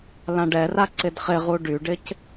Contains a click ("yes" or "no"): yes